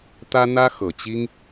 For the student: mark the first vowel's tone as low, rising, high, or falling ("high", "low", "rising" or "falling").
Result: high